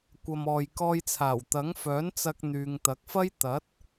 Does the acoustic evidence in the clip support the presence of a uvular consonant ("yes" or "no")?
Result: no